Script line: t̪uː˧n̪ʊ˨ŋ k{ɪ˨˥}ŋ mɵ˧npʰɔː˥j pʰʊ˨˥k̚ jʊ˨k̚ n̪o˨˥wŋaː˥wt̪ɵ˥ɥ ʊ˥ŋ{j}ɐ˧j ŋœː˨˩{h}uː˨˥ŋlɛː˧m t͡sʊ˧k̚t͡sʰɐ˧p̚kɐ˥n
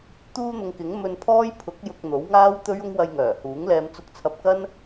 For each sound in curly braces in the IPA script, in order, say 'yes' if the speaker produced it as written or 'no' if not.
yes, no, yes

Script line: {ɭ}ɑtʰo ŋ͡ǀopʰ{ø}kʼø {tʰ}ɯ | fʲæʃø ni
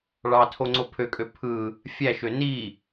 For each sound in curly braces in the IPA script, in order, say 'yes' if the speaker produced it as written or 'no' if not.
yes, yes, no

